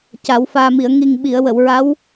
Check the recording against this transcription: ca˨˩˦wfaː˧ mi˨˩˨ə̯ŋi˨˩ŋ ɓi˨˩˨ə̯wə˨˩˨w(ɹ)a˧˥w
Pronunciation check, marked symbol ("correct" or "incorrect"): correct